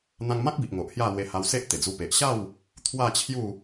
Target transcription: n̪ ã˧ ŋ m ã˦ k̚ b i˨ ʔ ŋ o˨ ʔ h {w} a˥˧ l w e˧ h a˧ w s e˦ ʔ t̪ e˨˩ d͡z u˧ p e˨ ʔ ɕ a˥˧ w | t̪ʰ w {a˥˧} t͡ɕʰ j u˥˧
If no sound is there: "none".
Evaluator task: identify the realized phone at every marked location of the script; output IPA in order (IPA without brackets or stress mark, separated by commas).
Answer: j, a˥˧